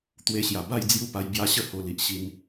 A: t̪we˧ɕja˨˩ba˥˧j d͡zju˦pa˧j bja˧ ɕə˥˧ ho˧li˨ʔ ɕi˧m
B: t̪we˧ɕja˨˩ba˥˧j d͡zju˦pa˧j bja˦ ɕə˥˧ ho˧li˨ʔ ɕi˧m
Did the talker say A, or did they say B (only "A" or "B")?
B